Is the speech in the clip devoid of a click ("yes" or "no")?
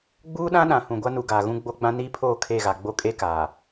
yes